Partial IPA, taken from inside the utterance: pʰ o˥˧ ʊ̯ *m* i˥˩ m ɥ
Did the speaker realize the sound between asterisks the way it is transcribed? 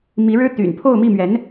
yes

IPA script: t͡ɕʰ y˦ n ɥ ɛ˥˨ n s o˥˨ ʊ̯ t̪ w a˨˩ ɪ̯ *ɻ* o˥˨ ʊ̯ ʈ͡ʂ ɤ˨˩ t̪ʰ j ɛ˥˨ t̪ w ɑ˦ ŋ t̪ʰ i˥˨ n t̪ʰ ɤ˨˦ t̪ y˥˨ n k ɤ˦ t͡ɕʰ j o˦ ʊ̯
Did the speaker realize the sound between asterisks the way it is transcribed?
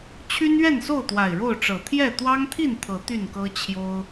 yes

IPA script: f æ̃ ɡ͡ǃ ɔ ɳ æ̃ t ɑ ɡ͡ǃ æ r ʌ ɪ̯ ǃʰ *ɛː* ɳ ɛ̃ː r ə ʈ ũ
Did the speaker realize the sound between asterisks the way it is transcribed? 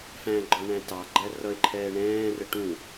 yes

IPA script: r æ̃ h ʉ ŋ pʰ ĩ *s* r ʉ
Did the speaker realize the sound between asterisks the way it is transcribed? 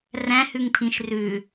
no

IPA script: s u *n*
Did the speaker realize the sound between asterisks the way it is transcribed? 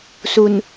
yes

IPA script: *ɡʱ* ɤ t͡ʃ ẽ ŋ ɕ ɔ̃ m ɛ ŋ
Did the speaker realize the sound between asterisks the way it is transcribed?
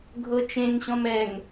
yes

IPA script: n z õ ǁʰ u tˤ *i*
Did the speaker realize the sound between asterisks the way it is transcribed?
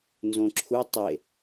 no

